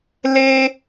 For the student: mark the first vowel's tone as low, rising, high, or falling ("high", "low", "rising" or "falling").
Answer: high